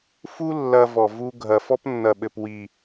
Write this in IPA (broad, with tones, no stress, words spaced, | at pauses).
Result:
fu˦ lːɐ˧ vɔ˨ vu˧ɡʱɐ˨ fɔ˦pnːɐ˨ɓɘ˨p wi˨